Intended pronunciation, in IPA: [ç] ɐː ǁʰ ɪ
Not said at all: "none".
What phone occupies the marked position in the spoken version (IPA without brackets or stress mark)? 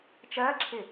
t͡ʃ